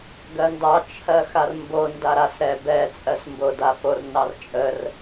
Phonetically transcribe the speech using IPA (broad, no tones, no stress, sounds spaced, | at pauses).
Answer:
ɡ ɜ n d ɑ t͡ʃʰ ɜ x a r m b o n d a ɾ a s ɾ ɛ b ɛ t͡sʼ ɜ s m b o d a f o r n ɑ r t͡ʃʼ ə r